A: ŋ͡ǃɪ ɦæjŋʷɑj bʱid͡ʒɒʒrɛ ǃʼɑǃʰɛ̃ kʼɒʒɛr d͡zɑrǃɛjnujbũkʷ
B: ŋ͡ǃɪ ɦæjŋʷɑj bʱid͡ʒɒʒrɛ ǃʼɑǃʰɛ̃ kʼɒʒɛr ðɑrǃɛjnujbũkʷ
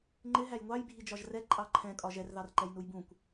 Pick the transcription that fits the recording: B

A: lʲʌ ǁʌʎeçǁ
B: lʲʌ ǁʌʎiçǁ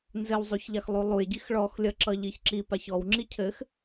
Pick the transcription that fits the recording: B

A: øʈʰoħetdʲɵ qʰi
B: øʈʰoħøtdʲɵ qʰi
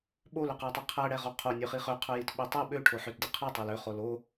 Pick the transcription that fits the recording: B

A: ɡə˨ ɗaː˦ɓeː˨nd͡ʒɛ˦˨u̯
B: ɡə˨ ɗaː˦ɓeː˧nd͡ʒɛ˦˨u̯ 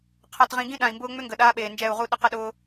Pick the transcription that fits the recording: A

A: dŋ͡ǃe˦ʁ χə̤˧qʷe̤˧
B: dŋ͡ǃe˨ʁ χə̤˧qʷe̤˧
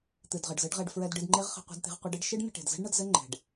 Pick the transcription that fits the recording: A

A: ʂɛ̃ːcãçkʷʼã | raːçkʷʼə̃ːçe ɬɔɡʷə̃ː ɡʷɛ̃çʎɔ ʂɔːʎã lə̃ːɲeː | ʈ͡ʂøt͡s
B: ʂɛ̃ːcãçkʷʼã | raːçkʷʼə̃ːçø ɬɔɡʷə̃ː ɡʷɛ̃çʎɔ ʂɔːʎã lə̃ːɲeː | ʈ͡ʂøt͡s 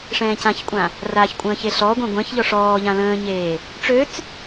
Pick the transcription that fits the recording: A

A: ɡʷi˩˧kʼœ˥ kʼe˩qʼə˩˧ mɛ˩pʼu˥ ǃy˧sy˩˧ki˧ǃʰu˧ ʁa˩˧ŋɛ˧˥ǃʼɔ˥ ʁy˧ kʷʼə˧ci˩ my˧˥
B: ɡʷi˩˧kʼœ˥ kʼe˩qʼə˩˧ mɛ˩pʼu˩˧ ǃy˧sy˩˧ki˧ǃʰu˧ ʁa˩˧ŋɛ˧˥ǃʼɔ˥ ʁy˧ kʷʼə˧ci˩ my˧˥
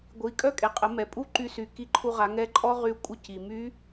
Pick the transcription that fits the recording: A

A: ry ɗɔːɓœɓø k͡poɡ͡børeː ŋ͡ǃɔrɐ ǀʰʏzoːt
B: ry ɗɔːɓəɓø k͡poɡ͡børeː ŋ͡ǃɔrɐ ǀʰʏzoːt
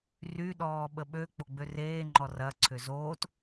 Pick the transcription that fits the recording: B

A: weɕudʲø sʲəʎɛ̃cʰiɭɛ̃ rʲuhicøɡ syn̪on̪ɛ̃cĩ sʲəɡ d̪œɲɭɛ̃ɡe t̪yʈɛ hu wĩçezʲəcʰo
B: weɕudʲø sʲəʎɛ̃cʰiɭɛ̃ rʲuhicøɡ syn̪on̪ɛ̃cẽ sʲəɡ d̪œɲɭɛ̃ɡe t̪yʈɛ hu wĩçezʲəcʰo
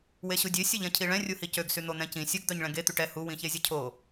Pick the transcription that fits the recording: A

